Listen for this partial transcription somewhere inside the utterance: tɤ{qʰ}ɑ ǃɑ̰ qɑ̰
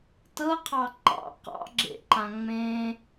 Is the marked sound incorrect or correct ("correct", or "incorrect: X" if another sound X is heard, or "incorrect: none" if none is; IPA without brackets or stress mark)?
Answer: correct